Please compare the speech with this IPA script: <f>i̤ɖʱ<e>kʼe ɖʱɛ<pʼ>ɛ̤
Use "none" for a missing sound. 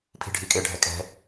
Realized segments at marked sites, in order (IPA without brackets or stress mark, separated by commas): pʰ, i, kʼ